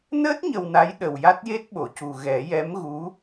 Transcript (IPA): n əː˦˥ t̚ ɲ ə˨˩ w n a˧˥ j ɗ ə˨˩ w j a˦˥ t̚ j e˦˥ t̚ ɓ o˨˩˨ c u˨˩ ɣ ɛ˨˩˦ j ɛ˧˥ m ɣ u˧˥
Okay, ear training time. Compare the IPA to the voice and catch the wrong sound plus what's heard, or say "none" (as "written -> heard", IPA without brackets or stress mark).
none